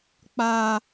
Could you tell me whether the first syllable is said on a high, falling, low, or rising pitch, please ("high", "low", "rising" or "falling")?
high